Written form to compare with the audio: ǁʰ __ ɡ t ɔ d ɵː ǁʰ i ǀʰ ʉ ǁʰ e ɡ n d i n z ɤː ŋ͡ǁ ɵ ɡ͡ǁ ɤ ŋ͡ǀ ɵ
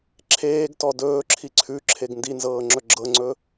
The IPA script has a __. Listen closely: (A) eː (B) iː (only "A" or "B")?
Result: A